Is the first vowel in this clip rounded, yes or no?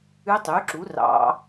yes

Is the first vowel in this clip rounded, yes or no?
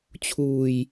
yes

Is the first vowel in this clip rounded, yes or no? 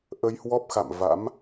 no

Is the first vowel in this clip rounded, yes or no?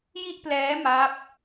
no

